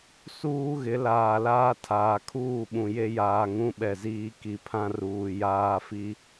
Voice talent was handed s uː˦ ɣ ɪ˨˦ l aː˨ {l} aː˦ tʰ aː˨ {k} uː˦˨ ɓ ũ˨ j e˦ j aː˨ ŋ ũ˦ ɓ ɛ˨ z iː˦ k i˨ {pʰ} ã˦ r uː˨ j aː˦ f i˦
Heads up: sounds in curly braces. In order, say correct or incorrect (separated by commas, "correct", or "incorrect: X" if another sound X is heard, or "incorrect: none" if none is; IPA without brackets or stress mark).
correct, incorrect: kʰ, correct